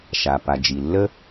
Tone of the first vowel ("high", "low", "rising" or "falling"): low